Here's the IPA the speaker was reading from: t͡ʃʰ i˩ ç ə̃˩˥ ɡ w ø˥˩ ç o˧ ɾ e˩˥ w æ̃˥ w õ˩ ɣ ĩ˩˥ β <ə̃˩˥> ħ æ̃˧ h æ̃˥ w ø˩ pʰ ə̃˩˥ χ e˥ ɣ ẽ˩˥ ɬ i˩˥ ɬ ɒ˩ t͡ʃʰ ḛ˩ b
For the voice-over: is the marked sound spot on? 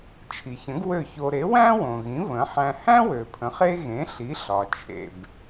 yes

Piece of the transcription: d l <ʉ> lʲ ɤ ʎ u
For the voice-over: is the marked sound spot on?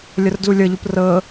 no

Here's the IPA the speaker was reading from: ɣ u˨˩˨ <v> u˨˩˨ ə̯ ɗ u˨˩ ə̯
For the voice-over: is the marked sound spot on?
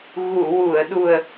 no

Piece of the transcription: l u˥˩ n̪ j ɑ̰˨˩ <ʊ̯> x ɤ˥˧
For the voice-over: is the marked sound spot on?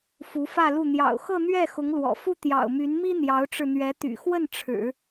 yes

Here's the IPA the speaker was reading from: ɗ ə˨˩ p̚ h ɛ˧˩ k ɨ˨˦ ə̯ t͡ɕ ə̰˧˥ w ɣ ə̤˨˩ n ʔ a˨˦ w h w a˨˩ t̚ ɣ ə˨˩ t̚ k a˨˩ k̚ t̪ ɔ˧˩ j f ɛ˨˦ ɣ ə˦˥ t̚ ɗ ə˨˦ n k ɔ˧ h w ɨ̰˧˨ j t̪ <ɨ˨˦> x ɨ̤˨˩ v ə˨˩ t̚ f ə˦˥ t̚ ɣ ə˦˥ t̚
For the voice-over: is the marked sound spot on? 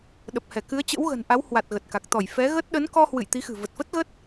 no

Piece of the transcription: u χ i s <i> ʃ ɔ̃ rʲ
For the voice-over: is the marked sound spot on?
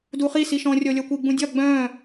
yes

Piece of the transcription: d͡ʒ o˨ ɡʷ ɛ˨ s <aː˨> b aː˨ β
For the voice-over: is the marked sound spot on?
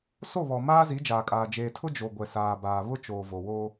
yes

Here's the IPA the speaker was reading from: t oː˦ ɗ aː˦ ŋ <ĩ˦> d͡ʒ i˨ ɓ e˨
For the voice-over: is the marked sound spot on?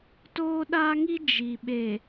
no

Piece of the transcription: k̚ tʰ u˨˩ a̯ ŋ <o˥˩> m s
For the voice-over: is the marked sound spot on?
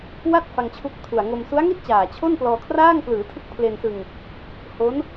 no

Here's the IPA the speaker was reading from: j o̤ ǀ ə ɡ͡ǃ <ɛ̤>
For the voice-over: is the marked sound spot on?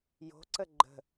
no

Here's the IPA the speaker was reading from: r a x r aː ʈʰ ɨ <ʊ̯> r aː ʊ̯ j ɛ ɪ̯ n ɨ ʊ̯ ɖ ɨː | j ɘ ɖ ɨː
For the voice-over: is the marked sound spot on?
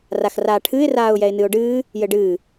no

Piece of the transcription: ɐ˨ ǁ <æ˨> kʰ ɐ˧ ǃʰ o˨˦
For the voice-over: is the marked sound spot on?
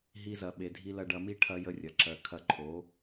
no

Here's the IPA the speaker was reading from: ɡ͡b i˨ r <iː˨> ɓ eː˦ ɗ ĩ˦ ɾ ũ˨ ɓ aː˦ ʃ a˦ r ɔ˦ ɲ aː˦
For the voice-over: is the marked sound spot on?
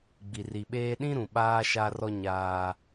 no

